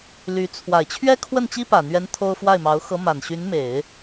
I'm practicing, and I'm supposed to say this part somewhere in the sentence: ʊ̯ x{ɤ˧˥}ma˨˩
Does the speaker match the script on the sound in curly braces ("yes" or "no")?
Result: yes